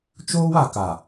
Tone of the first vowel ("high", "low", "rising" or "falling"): high